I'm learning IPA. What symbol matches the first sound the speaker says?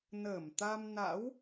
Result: n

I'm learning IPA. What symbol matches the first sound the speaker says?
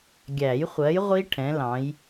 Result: ɡʲ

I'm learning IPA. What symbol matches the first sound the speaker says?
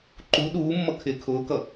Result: ǃ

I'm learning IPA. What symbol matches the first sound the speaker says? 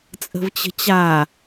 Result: t͡sʼ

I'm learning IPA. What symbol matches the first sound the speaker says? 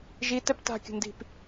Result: ʒ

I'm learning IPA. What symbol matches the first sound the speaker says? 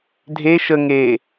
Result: dʱ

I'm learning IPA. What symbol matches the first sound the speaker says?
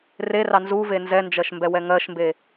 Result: r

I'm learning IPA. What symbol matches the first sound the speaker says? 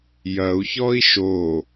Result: j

